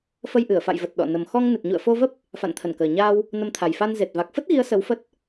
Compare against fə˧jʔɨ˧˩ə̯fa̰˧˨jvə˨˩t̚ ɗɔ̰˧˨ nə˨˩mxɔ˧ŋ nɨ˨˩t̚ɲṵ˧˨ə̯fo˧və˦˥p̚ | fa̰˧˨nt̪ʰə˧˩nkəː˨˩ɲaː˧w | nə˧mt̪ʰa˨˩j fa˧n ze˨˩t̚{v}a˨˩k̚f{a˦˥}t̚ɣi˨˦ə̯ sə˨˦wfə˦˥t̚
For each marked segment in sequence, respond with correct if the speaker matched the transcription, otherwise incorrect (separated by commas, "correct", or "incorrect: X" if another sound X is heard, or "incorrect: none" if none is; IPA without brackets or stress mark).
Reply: correct, incorrect: ə˦˥